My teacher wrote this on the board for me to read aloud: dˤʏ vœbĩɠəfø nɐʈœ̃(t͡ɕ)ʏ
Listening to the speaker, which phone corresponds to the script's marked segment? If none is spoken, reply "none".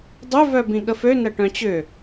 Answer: t͡ɕ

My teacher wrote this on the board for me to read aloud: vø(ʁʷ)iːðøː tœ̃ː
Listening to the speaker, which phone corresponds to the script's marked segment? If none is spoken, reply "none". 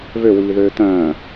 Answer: w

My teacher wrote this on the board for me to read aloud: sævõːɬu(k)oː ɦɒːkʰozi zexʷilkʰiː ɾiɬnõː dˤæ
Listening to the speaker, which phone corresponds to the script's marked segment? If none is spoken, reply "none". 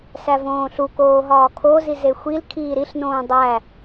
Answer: k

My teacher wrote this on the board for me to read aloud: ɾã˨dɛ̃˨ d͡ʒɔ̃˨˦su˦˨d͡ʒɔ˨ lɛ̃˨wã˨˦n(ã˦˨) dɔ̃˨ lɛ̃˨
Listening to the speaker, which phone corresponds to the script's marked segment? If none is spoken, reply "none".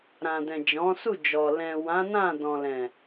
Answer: ã˦˨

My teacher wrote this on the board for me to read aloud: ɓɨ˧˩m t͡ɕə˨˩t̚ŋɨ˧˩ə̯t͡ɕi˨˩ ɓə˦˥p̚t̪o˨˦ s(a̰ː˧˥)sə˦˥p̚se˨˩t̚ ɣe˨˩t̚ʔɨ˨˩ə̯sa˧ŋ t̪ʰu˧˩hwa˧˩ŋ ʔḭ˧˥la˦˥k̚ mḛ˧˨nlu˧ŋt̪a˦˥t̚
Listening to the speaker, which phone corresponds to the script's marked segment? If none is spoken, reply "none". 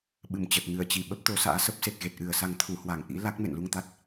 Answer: a̰ː˧˥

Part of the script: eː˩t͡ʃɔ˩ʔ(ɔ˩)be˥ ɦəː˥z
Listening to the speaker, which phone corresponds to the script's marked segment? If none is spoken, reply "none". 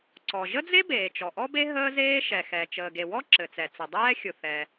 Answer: ɔ˥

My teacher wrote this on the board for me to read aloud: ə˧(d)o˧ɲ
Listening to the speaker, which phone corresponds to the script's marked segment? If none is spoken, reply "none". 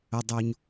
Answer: dˤ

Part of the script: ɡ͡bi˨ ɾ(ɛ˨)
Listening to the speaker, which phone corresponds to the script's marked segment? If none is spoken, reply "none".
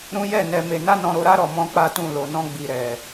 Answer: ɛ˨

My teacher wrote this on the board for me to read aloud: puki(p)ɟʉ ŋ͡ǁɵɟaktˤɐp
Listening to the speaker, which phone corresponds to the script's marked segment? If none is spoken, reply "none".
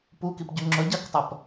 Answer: p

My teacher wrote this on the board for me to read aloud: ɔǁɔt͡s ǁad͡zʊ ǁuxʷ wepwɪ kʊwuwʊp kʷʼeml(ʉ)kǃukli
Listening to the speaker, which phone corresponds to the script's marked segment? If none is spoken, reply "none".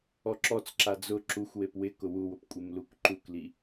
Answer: u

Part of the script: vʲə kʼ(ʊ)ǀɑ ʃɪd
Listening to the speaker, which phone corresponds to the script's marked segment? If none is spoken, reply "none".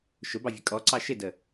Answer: ɔ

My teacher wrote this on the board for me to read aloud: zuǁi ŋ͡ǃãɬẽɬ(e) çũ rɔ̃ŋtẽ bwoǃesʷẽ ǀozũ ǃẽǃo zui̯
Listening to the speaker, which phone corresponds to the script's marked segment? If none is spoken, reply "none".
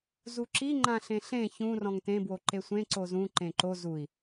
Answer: ẽ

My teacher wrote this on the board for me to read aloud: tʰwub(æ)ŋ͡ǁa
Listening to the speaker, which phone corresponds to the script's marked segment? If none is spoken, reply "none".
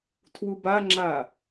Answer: a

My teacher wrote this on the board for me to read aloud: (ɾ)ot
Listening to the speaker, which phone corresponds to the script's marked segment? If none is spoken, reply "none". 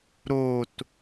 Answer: ɾ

